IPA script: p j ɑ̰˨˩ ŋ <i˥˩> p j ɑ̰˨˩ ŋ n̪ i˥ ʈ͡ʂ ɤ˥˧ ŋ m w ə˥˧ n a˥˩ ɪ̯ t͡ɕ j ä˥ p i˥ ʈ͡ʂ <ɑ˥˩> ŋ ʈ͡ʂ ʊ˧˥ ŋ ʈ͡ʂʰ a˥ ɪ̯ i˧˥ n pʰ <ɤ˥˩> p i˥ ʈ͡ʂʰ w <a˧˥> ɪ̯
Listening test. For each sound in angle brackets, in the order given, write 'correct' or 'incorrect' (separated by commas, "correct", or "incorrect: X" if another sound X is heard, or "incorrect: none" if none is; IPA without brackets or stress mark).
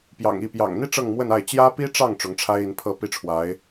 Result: correct, correct, correct, correct